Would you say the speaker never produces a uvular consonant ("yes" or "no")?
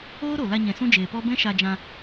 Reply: yes